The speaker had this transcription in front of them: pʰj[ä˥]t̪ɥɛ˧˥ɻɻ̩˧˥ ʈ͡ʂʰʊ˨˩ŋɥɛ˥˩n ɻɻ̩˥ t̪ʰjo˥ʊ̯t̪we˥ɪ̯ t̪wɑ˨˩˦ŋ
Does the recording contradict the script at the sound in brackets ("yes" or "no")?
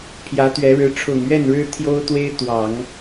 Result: yes